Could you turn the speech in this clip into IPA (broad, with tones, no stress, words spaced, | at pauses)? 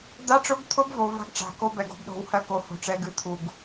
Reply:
d̪a˦ʈ͡ʂʊ˦ɡt̪ʰʊ˦bvo˨ va̤˦ɡʈ͡ʂa̤˨ko˦ bɛ˨ɡo̤˦bɗo̤˨˦whɜ˦ ko˦˨ho̤˦ʈ͡ʂɛ˦ɡɨ˦ t̪ʰu˨ɡ